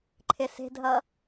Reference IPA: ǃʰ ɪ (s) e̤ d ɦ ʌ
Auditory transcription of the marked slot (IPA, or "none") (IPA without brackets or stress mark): s